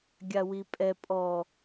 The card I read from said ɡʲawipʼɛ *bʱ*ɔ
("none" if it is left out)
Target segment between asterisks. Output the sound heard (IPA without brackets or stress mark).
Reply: pʼ